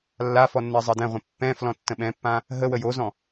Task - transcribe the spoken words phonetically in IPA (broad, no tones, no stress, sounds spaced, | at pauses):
lː a f ɔ nː ɛ zˤ ɜ d ɛ̃ ʁʷ ĩ pː ɛ̃ f l ɔ̃ tː ə̃ ɓ ɛ̃ pː ã | ɦ ə w ə j o z ɔ̃